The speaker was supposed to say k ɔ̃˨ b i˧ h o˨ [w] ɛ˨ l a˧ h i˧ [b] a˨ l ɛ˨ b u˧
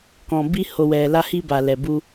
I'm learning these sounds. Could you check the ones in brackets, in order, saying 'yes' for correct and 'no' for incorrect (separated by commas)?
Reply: yes, yes